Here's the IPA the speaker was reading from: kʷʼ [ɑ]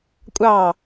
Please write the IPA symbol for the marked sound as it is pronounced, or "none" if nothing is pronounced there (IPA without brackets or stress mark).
ɑ